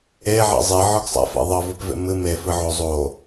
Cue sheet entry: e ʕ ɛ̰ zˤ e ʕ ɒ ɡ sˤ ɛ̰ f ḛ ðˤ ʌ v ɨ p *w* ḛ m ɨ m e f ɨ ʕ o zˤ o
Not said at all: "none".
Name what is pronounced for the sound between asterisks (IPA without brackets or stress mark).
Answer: v